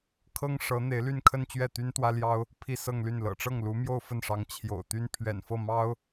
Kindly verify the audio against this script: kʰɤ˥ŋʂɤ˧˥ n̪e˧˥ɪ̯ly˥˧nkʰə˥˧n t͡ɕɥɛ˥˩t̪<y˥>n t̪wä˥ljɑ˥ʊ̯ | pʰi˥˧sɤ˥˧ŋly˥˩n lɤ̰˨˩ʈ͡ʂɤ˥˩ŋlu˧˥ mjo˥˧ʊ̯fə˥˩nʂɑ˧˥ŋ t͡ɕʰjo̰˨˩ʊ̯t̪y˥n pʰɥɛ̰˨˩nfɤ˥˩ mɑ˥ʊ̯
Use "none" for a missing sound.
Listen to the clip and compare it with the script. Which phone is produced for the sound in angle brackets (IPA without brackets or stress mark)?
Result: y˥